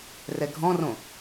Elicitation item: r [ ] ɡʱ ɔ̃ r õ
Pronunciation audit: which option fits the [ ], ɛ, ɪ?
ɛ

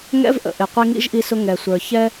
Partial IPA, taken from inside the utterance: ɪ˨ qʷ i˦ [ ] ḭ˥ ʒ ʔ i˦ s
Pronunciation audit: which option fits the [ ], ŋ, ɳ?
ŋ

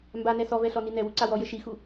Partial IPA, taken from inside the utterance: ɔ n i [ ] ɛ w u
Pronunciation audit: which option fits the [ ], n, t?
n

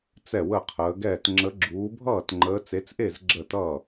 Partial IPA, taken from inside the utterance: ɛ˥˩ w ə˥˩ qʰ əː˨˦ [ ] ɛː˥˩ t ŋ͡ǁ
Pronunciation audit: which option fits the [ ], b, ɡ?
ɡ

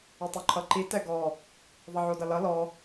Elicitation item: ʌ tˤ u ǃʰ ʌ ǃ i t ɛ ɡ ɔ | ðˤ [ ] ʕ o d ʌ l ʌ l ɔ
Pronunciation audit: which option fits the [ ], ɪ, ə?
ə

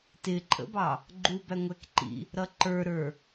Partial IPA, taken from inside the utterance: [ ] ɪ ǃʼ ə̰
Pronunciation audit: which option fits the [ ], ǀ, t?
t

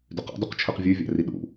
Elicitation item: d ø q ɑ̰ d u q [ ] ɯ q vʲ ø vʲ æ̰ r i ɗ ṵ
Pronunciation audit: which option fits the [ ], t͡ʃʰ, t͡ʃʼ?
t͡ʃʰ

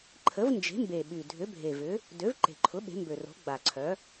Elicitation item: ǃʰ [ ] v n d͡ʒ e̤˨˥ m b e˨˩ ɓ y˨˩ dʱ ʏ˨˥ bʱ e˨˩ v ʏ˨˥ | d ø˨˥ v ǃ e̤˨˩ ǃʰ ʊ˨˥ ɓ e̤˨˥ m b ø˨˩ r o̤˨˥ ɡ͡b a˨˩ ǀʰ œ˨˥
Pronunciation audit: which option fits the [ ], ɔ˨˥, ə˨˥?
ə˨˥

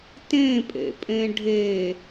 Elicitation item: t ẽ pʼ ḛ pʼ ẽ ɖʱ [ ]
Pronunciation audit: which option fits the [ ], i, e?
e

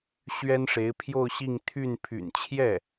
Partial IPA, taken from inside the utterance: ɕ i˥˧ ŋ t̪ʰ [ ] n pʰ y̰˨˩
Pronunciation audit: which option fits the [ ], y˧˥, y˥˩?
y˥˩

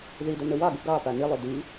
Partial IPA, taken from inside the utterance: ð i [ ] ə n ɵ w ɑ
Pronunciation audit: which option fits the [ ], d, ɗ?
d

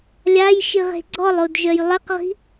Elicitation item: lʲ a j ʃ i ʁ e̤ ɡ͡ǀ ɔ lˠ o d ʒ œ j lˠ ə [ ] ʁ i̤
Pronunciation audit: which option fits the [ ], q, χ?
q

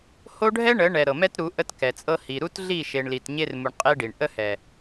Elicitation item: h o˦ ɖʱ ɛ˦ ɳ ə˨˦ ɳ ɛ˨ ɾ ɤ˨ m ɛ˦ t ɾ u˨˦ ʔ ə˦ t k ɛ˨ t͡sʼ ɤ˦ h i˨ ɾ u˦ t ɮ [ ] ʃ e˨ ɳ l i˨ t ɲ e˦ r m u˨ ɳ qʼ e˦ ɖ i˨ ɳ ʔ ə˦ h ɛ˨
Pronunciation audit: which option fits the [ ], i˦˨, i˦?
i˦˨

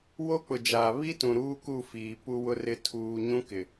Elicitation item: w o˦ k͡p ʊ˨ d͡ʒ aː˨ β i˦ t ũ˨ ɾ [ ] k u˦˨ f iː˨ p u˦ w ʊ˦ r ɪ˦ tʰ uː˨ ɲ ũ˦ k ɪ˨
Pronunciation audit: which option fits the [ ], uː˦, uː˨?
uː˦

